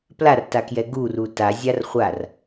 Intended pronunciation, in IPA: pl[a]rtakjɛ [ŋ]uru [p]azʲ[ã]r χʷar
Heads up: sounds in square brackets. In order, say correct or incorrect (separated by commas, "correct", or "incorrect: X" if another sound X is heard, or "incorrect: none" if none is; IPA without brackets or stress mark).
correct, incorrect: ɡ, incorrect: t, incorrect: a